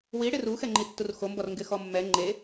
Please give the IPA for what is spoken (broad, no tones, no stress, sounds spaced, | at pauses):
w i ɽ ɪ r u x ɛ ŋ͡ǃ i tː u r x o m b ɔ r ŋ ɡ ɪ x ɔ mː ɛ ŋ͡ǃ e